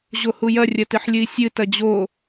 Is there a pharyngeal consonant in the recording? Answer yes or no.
yes